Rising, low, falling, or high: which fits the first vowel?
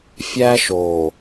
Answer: high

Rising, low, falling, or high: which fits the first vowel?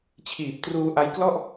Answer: low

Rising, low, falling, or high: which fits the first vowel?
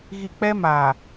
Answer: low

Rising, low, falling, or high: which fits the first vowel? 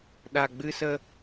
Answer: low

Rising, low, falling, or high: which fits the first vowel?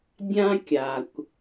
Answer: high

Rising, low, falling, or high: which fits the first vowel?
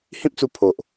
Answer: high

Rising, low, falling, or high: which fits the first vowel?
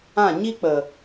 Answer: falling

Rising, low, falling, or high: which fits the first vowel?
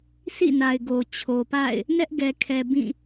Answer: falling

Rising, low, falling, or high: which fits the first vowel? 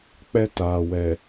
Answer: high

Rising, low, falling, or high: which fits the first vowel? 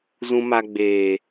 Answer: high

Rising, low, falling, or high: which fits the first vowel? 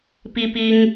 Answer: high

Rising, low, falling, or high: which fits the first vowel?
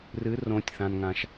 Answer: rising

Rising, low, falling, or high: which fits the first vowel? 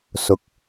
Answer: low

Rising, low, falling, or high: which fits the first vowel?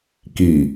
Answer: low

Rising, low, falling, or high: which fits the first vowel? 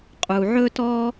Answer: low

